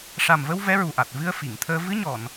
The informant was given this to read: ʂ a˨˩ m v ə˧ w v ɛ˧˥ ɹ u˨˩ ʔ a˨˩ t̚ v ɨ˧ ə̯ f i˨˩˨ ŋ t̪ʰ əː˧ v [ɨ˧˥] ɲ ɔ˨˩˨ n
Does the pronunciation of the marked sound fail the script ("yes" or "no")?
no